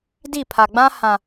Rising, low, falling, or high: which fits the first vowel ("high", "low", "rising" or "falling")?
falling